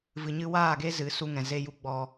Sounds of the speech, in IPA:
v ɨ˨ ɲ ɨ˧ w aː˦˨ ɡ e˦ z ɨ˨˦ s u˦ ŋ ɛ̃˨ z e˦ j u˦ ɡ͡b ɔ˧

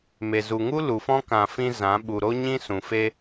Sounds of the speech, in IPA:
m e˨ z u˨ ŋ u˦ l u˨ f ɔ̃˦ k ã˨ f ĩ˧ z ã˨˦ ɓ u˨ ɾ o˦ ɲ ĩ˦ s ũ˨ f e˦

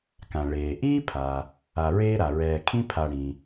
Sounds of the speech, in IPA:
k ã˩ ɭ eː˩ ʔ iː˥ pʰ a˩ | a˨ ɹ eː˦ ɾ a˩ ɹ ɛː˨ kʰ ĩ˥ pʰ a˨ ɽ ĩ˩

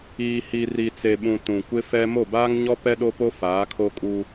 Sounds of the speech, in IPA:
iː˨ h i˨ r i˨ t͡s e˨ ɓ ũ˨ t ũ˨ kʷ ɪ˦ f ɛ˦ m o˦˨ b aː˦ ŋ ɲ ɔ˦ p ɛ˦ ɗ o˦ p o˦ f aː˨˦ kʰ o˦ kʼ u˦

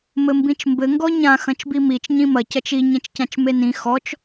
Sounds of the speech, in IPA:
m ɘ m b ĩ t͡ʃ m b ɘ ŋ ɡ ɔ ɲ ã x ɐ̃ t͡ʃ b i m i t͡ʃ ɲ ĩ m ɐ c ɐ t͡ʃ i ɲ ẽ t͡ʃ c ã t͡ʃ m e n ĩ x ɔ t͡ʃ

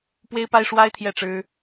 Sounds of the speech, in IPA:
p w e˥ ɪ̯ p a˥ ɪ̯ ʂ w a˥ ɪ̯ t̪ʰ j ɛ˥˩ ʈ͡ʂ ɻ̩˥

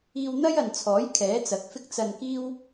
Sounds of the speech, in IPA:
iː˧ w n̪ ɐ˥ j ɐ˨ n t͡sʰ ɔː˨˥ j kʰ ɛː˨˥ t͡s ɐ˨˥ k̚ f ɪ˥ k̚ t͡s ɐ˧ n k iː˥ w

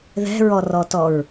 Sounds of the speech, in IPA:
ð ɛ̤ ɹ ɔ r ɔ t ɔ ɹ

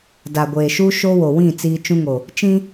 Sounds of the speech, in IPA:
d a˨ ɡʷ eː˨ ʃ u˦ ʃ o˦ w o˨ w ĩ˦˨ t͡s iː˦ t͡ʃ ũ˦ ŋ o˨ | t͡ʃ ĩ˦

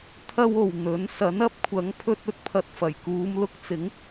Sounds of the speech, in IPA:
t̪ʰ ɐ˧ w o˨ w n̪ ɵ˨˥ n s ɐ˨˥ n ɐ˥ p̚ kʷʰ ɐ˨˥ ŋ pʰ ɵ˧ t̚ ɵ˨ t̚ pʰ ɐ˨ t̚ f ɐ˨˩ j k uː˨˧ m l ʊ˧ k̚ t͡s ɪ˨˥ ŋ

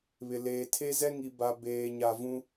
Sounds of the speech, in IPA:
β ɪ˨ l eː˨ tʰ e˦ z ɛ˦ ŋ i˨ b a˨ b eː˨ ɲ a˨ v ũ˦

